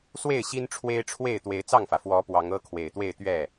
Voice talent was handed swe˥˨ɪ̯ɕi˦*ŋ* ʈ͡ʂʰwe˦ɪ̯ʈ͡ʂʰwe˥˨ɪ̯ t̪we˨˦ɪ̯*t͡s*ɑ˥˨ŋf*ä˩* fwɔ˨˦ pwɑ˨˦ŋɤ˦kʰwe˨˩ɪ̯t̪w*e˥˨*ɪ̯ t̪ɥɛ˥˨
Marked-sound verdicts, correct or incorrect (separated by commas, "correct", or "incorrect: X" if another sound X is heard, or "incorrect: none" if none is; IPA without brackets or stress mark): incorrect: n, correct, correct, correct